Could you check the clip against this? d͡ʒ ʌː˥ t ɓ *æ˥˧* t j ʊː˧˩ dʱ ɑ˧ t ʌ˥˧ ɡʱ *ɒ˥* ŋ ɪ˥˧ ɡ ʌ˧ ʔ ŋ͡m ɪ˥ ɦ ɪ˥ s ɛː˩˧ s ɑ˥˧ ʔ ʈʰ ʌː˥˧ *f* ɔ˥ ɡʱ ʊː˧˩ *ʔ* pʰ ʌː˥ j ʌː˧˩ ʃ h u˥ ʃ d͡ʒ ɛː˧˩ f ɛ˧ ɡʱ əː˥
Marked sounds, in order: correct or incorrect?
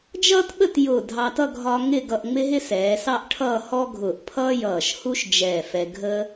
incorrect: ə˥˧, correct, incorrect: h, correct

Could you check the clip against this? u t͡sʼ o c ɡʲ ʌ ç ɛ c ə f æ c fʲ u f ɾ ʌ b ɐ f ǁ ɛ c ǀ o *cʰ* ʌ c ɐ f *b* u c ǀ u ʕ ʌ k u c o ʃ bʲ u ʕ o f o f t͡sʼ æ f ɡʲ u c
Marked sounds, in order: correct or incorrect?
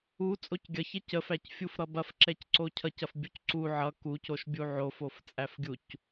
correct, incorrect: bʲ

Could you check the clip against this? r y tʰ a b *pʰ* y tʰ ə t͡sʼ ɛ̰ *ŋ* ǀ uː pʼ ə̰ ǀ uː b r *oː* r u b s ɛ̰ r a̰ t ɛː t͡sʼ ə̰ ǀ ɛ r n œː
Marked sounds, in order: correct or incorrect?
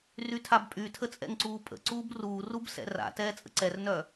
incorrect: pʼ, correct, incorrect: uː

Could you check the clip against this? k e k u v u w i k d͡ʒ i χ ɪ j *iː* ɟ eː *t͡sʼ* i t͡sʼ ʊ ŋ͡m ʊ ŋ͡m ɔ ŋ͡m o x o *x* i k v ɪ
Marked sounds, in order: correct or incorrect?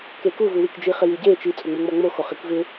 incorrect: i, incorrect: t͡ʃ, incorrect: χ

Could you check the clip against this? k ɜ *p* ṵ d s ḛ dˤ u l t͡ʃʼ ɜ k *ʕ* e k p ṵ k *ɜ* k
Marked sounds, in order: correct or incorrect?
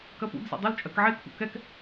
correct, correct, incorrect: ɛ

